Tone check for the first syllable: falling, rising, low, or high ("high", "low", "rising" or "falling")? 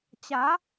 rising